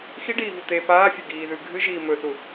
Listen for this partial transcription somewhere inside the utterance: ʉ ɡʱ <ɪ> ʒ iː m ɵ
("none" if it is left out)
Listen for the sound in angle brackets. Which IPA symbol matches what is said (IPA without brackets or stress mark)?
ɨ